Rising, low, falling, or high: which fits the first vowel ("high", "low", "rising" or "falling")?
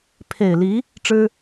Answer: low